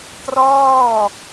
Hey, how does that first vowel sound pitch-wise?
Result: falling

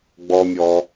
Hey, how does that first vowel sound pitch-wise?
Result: low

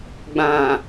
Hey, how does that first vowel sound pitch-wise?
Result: low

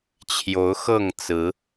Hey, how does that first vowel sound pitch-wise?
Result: rising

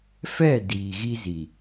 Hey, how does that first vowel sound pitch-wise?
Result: falling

